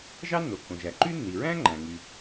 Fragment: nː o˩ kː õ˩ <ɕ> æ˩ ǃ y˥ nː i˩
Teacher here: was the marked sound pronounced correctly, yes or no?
no